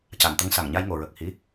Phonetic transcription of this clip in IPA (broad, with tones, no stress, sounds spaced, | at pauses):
c a˨˩˨ n t̪ ə˧ ŋ s a˨˩˨ ŋ ɲ a˧ j ŋ o˨˩˨ ɹ ə˨˩ k̚ h i˧˥